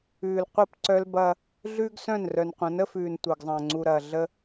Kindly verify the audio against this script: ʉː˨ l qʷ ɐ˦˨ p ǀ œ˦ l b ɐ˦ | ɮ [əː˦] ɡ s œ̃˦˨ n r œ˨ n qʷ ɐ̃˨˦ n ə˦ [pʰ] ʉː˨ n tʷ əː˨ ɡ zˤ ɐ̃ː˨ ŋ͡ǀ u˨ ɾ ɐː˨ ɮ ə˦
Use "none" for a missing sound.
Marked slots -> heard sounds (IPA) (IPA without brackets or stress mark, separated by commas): ʉː˦, f